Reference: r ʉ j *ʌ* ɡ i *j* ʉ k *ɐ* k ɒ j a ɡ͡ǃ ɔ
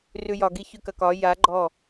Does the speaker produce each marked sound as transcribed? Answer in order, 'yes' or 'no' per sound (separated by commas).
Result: no, no, yes